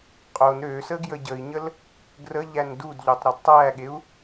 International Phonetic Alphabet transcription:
qʼon ɾøsə ɡjəɟəi̯ɲəl | ɡrə ʎændudʎøtˤ ɾɑdtˤæɠeu̯

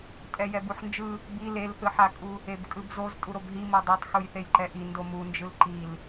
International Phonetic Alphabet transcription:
tʼɛjɛbuħnd͡ʒɯ | bi lelθɯħakʼu | ebkʼɯbzoz tʼuɾobɦi modˤotˤ xujθejǃɛʔi ndomund͡ʒɯl ǃil

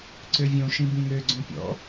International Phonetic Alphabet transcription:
ǀøvʲõʃĩ bĩŋø ɡ͡ǀõpʲɔ̰

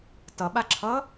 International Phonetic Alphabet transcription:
tʌɓaǁʰʌ

